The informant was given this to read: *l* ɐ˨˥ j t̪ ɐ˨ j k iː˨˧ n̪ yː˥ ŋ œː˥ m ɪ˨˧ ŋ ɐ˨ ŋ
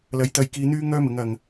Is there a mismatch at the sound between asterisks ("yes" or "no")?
no